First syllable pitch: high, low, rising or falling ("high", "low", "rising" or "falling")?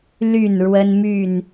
falling